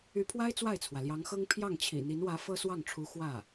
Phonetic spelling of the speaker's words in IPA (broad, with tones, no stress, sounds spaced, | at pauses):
y˧˥ pʰ w a˥ ɪ̯ t͡s w a˥˩ ɪ̯ t͡sʰ w ä˩ l j ɑ˧˥ ŋ x ɤ˥ ŋ pʰ j ɑ˥˩ ŋ t͡ɕʰ ḭ˨˩ n̪ i˧˥ n w ä˧˥ f ɤ˥ s w ɑ˥˩ ŋ ʈ͡ʂʰ u˧˥ x w ä˥˩